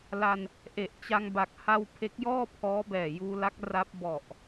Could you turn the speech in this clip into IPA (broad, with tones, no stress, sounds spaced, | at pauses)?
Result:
l a˧ n | ʔ e˨˩ ʔ t͡ɕ a˧ ŋ b a˨˩ k̚ h a˧ w pʰ e˦˥ k̚ j ɔː˥˩ pʰ ɔː˦˥ b ɛː˨˩ j uː˧ l a˦˥ k̚ r a˦˥ p̚ b ɔ˨˩ ʔ